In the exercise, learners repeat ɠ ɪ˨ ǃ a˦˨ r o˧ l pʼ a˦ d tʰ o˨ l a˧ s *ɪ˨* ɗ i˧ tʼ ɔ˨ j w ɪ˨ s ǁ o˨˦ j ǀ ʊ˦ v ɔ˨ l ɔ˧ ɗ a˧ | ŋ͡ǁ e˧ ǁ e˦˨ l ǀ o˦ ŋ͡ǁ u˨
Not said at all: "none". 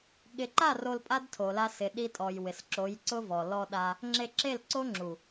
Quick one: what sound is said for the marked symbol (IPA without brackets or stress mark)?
ɪ˨